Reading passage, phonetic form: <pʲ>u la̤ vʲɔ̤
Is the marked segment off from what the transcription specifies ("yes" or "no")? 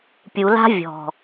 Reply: no